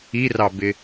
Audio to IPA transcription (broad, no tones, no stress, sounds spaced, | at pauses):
i r ɑ b ɪ